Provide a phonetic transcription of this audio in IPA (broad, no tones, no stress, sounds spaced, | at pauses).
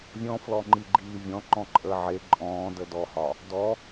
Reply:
vʲ ɔ̃ f l ɔ ŋ͡ǃ i ɡ͡ǃ iː vʲ ɔ̃ ŋ͡ǃ ɔ̃ ǃʼ əː ʕ e ǃʼ ɔ̃ː d ə d ɔ h ɒ | d ɔ